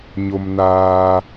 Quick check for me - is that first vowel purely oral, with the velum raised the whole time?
yes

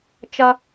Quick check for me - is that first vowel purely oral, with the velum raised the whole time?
yes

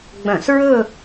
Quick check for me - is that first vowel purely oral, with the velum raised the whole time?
no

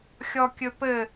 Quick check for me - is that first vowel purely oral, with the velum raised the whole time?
yes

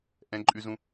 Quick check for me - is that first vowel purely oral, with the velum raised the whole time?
no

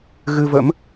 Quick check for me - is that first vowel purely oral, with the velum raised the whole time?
yes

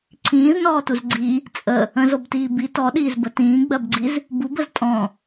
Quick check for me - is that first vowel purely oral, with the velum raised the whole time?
no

